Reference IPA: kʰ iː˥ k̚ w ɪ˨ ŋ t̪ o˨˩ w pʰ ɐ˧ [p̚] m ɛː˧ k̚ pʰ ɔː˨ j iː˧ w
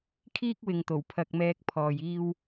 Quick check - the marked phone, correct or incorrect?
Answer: incorrect